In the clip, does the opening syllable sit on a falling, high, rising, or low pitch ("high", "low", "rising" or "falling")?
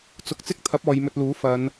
rising